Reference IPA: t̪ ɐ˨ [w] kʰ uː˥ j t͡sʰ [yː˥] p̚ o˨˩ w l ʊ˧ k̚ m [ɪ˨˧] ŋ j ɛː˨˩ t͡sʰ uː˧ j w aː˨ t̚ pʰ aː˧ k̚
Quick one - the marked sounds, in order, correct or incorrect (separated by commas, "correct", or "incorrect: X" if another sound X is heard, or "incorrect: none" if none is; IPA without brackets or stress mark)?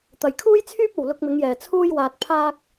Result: incorrect: j, correct, correct